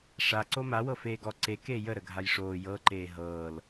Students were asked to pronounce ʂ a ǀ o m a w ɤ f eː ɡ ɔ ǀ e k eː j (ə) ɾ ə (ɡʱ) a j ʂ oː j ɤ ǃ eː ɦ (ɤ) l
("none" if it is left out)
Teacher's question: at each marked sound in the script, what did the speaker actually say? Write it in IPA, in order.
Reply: ə, ɡʱ, ɤː

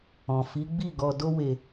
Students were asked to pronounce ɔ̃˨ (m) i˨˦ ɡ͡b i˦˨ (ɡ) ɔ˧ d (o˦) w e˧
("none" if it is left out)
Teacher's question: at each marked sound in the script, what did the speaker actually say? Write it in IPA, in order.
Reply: f, ɡ, o˦

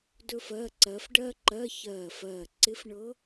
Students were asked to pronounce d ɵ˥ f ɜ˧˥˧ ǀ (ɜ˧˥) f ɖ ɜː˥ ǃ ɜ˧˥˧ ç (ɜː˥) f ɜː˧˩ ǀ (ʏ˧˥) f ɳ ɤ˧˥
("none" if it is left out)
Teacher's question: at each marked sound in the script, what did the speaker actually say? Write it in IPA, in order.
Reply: ɜ˧˥, ɜː˧˩, ɪ˧˥

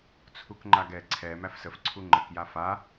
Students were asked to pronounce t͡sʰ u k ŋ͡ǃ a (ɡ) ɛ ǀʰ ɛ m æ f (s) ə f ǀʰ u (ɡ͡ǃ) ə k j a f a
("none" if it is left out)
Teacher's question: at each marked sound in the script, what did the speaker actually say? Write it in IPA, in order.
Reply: ɡ, s, ŋ͡ǃ

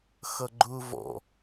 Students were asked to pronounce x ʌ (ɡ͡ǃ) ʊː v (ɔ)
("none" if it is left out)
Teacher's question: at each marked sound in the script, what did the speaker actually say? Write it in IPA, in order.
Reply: ɡ͡ǃ, ɔ̰

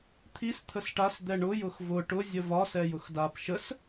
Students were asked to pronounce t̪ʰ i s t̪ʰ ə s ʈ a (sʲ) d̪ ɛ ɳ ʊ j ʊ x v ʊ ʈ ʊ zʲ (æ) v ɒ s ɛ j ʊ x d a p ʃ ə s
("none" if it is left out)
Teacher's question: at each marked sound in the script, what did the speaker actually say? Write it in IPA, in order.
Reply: s, ə

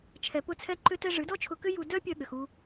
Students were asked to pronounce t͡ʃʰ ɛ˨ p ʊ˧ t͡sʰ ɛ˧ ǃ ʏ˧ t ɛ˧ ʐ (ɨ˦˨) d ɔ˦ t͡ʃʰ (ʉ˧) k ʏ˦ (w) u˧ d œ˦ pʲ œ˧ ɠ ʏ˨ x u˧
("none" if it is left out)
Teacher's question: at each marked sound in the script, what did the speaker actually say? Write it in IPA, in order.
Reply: ɨ˨˦, ʊ˧, j

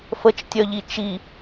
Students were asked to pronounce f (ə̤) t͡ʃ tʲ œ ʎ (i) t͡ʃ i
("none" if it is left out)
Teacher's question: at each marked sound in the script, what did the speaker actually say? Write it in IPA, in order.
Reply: ə, i

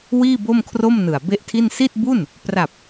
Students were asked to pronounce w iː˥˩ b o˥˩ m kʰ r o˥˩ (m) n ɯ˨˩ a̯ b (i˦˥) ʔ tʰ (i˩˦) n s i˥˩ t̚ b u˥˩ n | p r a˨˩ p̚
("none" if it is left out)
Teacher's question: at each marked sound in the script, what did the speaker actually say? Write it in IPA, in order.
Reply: m, e˦˥, i˥˩

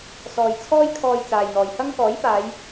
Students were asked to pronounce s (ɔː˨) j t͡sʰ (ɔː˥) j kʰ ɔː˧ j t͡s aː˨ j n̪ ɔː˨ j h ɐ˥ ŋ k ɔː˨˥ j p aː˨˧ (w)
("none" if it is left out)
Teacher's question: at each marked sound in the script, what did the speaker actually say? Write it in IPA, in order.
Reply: ɔː˨, ɔː˥, j

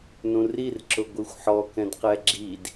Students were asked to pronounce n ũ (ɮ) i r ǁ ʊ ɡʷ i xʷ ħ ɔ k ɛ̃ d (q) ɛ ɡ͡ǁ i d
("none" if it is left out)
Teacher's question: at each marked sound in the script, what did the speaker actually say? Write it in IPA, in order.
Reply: r, q

